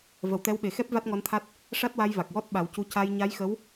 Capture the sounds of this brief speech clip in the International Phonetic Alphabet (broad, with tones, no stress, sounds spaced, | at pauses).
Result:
v ə˨˩ w t̪ ɛ˧˥ w ɓ e˨˩ x ɛ˦˥ p̚ v a˦˥ t̚ ŋ ɔ˧˥ n t̪ʰ a˦˥ t̚ | ʂ a˦˥ t̚ w a˧ j v a˨˩ k̚ w ɔ˦˥ t̚ ɓ a˨˩˦ w c u˧˥ c a˧ j ɲ a˧˥ j x ə˧˥ w